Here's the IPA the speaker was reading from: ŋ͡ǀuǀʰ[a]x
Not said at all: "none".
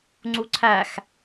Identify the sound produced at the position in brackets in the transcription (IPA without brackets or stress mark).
æ